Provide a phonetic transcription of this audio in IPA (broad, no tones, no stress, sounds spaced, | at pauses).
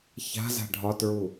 ç a̤ z a̤ ɖʱ ɒ t ɹ u